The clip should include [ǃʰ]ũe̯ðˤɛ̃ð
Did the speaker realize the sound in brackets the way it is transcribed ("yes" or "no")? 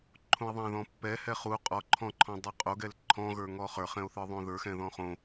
yes